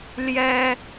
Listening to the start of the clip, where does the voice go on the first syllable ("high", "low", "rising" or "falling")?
high